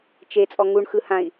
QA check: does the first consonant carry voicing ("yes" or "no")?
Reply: no